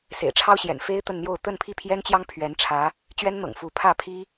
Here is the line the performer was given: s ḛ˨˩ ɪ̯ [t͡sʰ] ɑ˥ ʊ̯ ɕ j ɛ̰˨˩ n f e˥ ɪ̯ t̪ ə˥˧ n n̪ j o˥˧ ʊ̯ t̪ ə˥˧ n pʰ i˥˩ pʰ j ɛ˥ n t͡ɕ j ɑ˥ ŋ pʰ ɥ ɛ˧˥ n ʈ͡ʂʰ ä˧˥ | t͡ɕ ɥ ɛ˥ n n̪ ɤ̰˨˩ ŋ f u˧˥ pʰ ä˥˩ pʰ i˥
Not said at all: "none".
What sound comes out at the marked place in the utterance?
ʈ͡ʂʰ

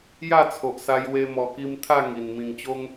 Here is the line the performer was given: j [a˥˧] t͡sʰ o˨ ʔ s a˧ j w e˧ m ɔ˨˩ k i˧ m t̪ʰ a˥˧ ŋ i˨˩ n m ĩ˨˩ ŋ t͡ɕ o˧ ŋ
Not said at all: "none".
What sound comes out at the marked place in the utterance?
a˥˧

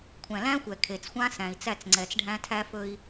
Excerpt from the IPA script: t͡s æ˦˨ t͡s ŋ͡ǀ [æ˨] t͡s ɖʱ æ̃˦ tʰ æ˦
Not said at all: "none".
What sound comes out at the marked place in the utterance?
ɛ˨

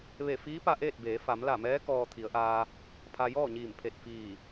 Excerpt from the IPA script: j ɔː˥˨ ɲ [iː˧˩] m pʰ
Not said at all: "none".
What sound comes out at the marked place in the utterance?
iː˧˩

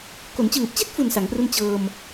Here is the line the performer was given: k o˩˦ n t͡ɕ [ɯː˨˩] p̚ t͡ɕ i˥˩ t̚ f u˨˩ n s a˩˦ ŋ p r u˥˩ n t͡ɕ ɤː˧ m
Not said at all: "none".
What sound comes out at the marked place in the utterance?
ɯː˨˩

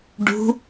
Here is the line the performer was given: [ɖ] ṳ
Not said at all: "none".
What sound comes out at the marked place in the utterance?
ɖ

